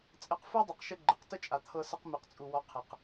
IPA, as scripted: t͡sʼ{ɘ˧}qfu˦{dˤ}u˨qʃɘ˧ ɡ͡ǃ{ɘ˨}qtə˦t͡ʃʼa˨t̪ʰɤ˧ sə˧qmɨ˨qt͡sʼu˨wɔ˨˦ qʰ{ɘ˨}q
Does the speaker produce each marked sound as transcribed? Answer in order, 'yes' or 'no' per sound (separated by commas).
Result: yes, yes, yes, yes